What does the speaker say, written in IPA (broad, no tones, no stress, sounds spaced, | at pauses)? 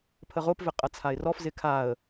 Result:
pʰ ə ʁ o p v ɪ qʼ ɐ t͡sʰ a ɪ̯ r ɔ f z ɪ kʰ a ə̯